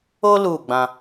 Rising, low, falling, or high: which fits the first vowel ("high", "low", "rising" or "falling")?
high